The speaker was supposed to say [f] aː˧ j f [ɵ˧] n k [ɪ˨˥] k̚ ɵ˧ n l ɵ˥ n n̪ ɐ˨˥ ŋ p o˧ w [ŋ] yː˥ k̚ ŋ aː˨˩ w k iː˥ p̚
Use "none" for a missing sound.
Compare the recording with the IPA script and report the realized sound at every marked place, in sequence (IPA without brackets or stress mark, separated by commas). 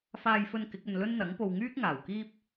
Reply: f, ɵ˧, ɪ˨˥, ŋ